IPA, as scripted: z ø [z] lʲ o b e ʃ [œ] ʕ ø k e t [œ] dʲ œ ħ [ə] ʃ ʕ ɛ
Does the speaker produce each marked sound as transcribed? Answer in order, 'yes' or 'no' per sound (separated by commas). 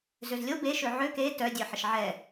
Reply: yes, no, yes, yes